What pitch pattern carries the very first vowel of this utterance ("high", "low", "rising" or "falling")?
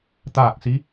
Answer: falling